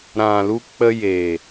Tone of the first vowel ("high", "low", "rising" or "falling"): low